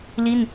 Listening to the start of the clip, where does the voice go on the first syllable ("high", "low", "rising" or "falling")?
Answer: falling